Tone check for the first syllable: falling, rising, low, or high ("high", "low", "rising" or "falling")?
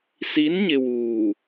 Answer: rising